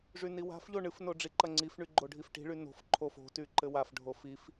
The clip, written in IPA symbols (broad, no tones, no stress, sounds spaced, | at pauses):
ʐ y n i w a̤ f ʎ o ɳ ɨ f n o ɖ͡ʐ i ǃ ɐ ŋ͡ǀ i f ɳ y ɡ͡ǃ o ɖʱ i f ʈ i̤ ɭ y n o̤ f ǃʰ o f o̤ t y ǃ ɘ w a f ɖʱ o f i f